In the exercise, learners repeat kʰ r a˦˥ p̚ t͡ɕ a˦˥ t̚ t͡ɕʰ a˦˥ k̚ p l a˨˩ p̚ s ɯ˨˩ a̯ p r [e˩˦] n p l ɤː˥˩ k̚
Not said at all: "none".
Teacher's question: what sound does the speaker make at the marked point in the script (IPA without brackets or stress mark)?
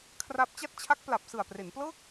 e˩˦